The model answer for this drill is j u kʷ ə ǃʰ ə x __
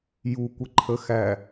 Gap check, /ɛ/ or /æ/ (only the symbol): æ